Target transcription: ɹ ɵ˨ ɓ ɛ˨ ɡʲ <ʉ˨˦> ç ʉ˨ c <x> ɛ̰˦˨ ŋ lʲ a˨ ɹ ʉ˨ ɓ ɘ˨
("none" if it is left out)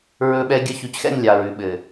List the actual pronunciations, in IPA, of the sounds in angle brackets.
ə˨˦, x

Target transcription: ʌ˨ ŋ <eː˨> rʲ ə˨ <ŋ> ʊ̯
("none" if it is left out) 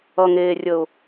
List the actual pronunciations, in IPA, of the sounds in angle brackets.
eː˨, none

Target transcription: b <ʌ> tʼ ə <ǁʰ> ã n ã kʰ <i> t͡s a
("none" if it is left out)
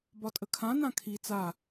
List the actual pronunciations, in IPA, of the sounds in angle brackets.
ɒ, kʰ, i

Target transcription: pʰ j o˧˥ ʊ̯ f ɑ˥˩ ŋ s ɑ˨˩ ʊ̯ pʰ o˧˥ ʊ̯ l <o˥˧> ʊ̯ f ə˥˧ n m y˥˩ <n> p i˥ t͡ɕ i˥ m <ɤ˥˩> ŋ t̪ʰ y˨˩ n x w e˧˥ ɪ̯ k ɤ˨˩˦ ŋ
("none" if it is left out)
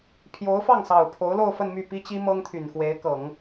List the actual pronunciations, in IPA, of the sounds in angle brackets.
o˥˧, none, ɤ˥

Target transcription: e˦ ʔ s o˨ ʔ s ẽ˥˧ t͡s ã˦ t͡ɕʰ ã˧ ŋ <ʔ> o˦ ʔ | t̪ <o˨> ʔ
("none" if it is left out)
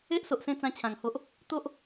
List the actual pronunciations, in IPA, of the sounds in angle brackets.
h, o˦

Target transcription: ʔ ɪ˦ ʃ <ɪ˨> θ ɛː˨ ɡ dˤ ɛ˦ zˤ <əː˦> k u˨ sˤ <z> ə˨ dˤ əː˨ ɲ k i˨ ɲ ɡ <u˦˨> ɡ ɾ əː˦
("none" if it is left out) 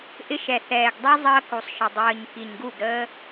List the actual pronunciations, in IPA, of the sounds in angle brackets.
ɛ˨, əː˦, ʃ, u˦˨

